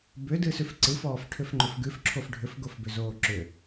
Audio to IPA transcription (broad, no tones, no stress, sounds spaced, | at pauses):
b ʏ d ɨ s ʉ f ǀ ɨ f ɔː f ʈʰ ʏ f ŋ͡ǃ ʏ f ɡ ʉ f ǁʰ o f ɖʱ ʏ f ɡ o f b ʏ z oː ǁ ʏ